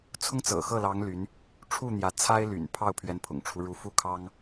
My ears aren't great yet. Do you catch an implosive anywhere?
no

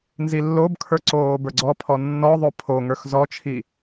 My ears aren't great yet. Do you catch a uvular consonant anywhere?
no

